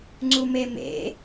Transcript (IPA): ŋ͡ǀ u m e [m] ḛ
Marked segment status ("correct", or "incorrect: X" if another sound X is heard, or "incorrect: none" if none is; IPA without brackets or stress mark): correct